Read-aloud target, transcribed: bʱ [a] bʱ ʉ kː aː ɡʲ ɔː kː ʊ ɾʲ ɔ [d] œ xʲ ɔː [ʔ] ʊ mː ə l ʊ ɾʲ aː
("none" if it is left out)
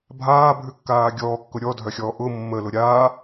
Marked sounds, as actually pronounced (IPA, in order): aː, dʱ, ʔ

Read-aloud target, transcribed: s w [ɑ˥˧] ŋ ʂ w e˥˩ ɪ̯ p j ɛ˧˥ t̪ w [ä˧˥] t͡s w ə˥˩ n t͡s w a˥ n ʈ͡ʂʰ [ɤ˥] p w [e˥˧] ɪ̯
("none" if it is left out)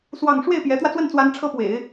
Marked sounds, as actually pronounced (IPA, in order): ɑ˥˧, ä˧, ɤ˥, ḛ˨˩˦

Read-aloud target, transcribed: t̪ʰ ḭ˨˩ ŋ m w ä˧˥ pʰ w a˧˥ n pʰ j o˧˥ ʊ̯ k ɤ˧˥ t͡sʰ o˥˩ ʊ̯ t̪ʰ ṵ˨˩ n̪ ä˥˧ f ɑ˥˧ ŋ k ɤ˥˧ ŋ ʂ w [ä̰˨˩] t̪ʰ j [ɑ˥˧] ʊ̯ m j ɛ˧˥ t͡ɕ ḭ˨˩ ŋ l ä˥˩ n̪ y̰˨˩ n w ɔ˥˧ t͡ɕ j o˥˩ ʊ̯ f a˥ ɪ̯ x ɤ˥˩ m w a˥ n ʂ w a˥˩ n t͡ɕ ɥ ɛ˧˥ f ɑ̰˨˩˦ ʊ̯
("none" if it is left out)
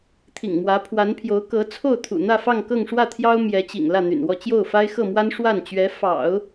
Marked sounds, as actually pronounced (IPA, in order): ä˥˩, ɑ˥

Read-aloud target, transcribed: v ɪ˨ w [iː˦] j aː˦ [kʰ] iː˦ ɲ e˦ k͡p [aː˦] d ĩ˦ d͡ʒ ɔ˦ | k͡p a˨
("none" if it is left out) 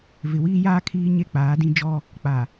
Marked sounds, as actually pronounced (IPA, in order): iː˦, kʰ, aː˨˦

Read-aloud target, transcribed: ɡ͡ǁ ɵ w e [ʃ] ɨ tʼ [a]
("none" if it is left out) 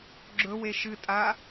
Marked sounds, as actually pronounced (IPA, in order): ʃ, a

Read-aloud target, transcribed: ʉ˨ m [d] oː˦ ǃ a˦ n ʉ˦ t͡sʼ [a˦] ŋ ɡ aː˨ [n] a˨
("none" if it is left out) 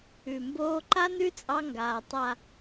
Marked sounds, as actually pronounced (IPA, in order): b, ɑ˦, tˤ

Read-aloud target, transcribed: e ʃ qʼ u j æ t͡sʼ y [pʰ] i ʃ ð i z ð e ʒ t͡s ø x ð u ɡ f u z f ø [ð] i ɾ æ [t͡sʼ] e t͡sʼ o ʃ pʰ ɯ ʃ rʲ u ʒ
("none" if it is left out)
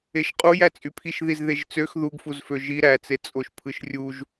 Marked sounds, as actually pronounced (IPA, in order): pʰ, ʒ, t͡s

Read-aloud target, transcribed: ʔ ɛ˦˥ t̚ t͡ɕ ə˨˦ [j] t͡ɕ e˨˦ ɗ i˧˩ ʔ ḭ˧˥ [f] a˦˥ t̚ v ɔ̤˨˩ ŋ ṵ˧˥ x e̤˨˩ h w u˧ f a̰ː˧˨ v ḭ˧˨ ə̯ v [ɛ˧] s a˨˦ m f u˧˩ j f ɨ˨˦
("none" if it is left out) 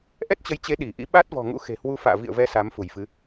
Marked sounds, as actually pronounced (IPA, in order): j, ɓ, ɛ˧

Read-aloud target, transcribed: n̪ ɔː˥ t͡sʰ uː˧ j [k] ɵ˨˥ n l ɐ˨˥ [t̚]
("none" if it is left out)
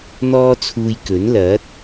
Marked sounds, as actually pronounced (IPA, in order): k, t̚

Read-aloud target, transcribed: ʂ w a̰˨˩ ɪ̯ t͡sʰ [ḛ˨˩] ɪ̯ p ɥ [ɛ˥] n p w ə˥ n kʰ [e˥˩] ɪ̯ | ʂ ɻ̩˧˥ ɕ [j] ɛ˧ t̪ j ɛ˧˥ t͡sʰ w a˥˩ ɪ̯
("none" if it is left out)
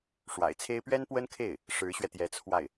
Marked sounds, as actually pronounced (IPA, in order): e˥, ɛ˥, e˥˩, ɥ

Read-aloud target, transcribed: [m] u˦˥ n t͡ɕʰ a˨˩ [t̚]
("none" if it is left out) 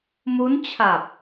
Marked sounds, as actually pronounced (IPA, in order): m, p̚

